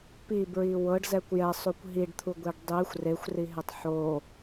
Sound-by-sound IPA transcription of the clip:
p i b ɹ i w ɤ ɖ z ɛ kʷ j ɛ sˤ u kʷ ɦ i ɖ t̪ʰ u ɡʷ e ɖ dˤ i xʷ r e xʷ r i ɦ e tˤ ħ o

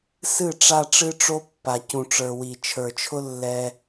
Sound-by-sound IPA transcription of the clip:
s ɨ˦˨ ʈ͡ʂ a˧ ʈ͡ʂ ɨ˦ ʈ͡ʂ o˦ pː a˨ c ũ˨ ʈ͡ʂ ə˞˨ w i˨ t͡ʃʰ ə˞˨ t͡ʃʰ ʊ˦ lː ɛ˧

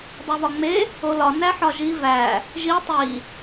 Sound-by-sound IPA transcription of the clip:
dˤ o β ɒ ŋ͡m e | o l ɒ n æ ħ ɒ ʒ i v æ | ʒ i tˤ i

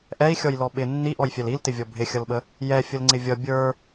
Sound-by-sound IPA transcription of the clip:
ʔ ɛ i̯ xʲ ɔ j l ɔ ɓ ɪ nː i ʔ ɔ j fʲ ɛ l i l t ɪ vʲ ɔ bʱ ɪ xʲ ʌ l ɓ ə | j ɛ fʲ ə l ŋ͡ǀ ɪ vʲ ʌ bʲ ə˞

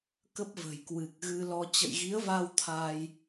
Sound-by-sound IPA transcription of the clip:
k ə˦˥ p̚ v ə̤˨˩ j k w ɨ˨˩ k̚ ɣ ɨ˧ l ɔ˧ t͡ɕ ə̰˧˨ j ɣ i˨˦ ə̯ v a˧ w t̪ʰ aː˧ j

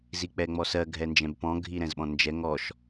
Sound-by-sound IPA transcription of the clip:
z i k͡p ɛ ŋ͡m ɔ s ɜ ɡʱ ɛ n d͡ʒ ɛ̃ b p ɔ̃ ɡʱ i ɾ ɛ̃ z ɓ ɔ̃ n d͡ʒ ɛ ŋ ɔ ʃ

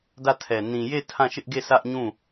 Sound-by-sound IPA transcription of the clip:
d ä˦˨ tʰ ɛ˨ n ĩ˨ j e˦˨ tʰ ã˦˨ ʃ ɪ˦ ʔ ɡ e˦˨ s ä˦ ʔ ɲ ũ˦˨

